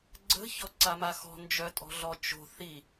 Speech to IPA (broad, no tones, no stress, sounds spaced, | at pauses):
ɡ͡ǀ ə̤ ç ɔ ǀ a m a x ɔ̤ n d͡ʒ œ tʼ ɔ̤ ɮ ɔ t͡ʃ o̤ θ i